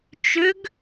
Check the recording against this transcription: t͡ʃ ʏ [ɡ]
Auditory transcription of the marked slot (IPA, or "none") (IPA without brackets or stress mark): ɡ